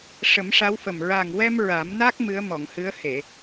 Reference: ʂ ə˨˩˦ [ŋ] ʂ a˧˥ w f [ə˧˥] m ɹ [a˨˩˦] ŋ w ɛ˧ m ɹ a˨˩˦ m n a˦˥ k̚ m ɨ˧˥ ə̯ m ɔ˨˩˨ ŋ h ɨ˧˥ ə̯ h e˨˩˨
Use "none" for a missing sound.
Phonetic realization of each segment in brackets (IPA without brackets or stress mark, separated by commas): m, ə˨˩, a˨˩